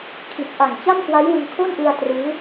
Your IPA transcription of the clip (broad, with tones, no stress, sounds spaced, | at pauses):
kʰ i˨˩ t̚ ʔ a˨˩ ŋ t͡ɕ a˥˩ m k w a˦˥ j w ɯ˧ ŋ kʰ o˥˩ n ʔ ɯ˧ a̯ t r ɯː˦˥